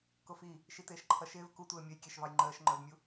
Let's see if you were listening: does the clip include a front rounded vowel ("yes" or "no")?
no